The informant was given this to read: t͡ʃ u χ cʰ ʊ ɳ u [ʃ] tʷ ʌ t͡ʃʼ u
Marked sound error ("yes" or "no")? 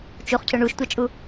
no